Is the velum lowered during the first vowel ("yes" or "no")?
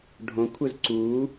yes